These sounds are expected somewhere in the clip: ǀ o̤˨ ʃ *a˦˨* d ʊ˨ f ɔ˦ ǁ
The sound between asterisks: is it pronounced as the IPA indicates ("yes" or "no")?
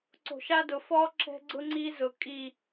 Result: no